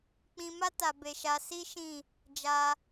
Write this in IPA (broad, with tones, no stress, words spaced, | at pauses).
k͡pĩ˧ma˦ ta˧be˧ʃa˧ si˦ ʃĩ˦˨ | d͡ʒa˧